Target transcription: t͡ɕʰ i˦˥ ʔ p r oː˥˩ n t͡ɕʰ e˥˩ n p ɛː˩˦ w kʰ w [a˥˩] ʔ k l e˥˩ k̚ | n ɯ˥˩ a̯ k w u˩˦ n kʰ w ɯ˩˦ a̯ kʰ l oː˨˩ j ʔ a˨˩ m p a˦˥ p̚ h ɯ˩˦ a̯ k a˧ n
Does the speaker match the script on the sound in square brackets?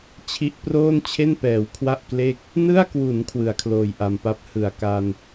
yes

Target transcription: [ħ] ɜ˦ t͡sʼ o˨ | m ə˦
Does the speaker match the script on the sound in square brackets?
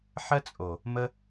yes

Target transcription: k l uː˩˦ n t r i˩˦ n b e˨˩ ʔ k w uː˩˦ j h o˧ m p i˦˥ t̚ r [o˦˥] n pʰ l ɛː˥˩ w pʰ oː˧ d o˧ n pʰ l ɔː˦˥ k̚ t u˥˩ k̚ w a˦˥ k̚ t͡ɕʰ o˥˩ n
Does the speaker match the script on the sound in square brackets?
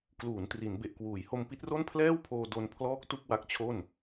no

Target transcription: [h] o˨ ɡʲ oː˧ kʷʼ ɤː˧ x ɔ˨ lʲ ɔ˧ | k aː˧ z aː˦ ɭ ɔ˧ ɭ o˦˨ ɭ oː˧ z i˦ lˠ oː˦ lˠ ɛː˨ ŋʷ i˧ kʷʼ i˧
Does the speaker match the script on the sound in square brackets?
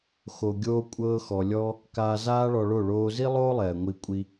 no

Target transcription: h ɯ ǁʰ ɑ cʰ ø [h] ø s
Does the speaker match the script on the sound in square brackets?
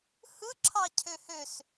yes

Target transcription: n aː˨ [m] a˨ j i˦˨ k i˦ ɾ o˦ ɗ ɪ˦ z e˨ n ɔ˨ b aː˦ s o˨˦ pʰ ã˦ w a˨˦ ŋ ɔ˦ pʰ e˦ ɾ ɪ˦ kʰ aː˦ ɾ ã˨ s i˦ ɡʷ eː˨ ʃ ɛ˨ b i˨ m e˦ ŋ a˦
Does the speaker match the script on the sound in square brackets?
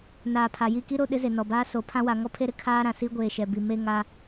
no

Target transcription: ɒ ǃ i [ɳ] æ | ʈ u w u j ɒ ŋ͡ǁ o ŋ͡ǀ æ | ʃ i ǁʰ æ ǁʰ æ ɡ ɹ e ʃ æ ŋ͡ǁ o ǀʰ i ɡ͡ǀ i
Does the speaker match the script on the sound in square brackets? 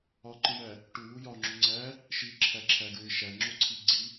yes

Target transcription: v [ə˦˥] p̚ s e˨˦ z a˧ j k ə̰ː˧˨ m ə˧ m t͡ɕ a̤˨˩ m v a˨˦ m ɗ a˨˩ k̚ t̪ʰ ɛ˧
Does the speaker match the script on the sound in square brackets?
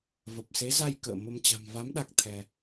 no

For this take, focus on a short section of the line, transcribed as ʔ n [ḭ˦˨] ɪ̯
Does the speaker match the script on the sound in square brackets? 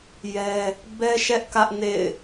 no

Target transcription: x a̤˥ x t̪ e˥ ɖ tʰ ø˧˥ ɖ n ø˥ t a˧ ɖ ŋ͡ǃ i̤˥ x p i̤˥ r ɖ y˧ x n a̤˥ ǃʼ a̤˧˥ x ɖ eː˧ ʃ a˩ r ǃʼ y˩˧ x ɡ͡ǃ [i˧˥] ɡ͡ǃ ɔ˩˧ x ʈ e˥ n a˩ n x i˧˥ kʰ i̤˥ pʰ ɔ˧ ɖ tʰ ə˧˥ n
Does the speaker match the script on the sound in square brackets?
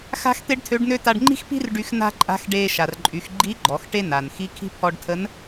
yes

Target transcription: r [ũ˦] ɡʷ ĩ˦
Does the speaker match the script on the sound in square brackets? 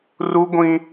no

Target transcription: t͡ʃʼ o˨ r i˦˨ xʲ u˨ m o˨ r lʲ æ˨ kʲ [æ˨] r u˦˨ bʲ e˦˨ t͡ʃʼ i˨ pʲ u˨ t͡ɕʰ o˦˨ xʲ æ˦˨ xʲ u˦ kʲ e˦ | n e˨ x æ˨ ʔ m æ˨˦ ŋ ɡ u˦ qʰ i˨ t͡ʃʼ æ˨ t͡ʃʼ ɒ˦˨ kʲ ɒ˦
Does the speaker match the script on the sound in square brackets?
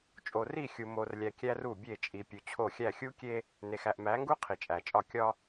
no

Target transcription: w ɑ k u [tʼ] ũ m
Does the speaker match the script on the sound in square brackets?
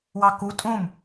yes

